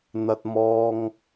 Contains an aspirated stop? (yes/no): no